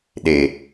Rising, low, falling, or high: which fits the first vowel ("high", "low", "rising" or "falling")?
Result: low